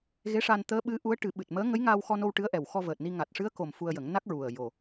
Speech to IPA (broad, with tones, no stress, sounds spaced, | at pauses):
ɣ e˧˥ ʂ a˧ n t̪ əː˧˥ ɓ ɨ˧˥ ʔ u˧˥ ə̯ ʈ ɨ˨˩˦ ɓ ɨ˨˩ t̚ m əː˧˥ ŋ ə˧˥ j ŋ aː˧ w x ɔ˧ n o˧ w ʈ ɨ˧˥ ə̯ ʔ ɛ˨˩ w x ɔ˧ v əː˨˩ t̚ n i˧ ŋ a˨˩ t̚ ʂ ɨ˧˥ ə̯ k o˨˩ m f u˧ ə̯ j ə˨˩˦ ŋ n a˦˥ k̚ ɹ u˨˩ ə̯ j o˨˩